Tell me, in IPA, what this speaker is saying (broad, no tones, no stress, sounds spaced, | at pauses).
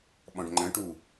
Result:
ɓ ɔ̃ ɖ ŋ͡ǃ ə̃ ʈ u